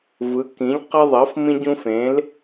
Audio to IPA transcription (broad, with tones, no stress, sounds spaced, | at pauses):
v ɯ˩˥ k ĩ˩˥ ʎ q ʌ˦ ðˤ ʌ˩˥ f m ĩ˦ ɟ ũ˦ f ẽ˩˥ l